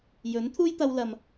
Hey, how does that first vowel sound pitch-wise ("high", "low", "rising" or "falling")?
rising